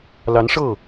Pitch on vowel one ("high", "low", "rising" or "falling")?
rising